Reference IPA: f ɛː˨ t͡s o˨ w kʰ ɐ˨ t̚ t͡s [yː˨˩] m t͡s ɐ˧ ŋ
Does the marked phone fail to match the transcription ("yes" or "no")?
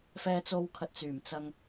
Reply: no